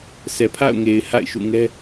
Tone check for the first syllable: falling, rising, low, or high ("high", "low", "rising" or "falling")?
low